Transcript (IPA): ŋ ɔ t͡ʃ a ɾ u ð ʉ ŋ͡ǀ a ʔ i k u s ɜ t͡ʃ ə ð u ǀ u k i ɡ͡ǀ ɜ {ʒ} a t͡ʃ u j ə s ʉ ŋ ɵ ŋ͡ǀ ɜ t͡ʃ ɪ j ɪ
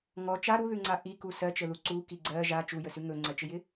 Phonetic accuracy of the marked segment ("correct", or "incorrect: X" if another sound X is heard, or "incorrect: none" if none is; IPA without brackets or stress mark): correct